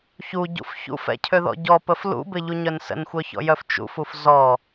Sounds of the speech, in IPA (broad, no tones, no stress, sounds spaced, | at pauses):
ç u ɟ ṵ f ç ṵ f ɛ̰ cʰ ø ð ɔ̰ ɟ ɔ p ə f l ṵ b ɪ ʎ u ɲ œ n s ə̰ n xʷ œ ç ɔ̰ j œ f t͡ʃ ṵ f u f z ɔ